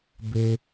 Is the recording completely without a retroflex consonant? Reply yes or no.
yes